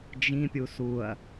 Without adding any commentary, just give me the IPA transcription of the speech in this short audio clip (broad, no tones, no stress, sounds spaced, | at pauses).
d͡ʒ ĩ pʲ u s u ɐ̯